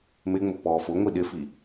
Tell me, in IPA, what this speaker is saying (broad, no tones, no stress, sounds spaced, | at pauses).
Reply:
m ɪ ŋ͡m ʊ pː ɔː f ʊ ŋʷ i ɗ ɪ f i